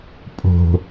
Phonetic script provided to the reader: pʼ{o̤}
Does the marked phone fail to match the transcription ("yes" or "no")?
no